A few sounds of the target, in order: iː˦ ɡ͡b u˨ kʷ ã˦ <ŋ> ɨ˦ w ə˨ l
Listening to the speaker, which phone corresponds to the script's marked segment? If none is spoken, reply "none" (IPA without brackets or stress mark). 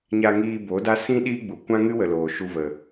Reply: ŋ